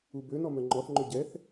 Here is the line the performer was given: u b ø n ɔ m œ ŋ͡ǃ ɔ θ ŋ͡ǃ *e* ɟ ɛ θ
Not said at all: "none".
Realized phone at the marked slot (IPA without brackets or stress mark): ø